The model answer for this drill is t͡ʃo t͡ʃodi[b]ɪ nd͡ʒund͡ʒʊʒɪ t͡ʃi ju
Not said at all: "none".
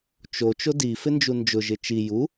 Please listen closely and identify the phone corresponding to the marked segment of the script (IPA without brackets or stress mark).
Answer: f